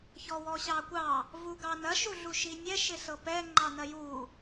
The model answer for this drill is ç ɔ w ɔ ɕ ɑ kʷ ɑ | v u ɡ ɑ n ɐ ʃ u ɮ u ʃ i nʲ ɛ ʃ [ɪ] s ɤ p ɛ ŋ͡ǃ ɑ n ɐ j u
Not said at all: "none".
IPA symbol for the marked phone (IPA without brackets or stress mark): ɪ